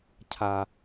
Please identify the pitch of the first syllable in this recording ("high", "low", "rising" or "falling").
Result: low